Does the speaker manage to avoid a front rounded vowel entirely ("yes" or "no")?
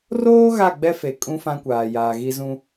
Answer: yes